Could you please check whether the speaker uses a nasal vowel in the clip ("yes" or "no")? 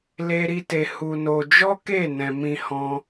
yes